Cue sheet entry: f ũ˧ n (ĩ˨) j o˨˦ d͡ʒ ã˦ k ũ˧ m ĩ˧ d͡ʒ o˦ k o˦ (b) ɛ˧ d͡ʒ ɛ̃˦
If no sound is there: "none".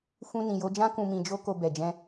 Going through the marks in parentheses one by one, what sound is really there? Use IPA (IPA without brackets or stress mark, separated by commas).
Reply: ĩ˨, b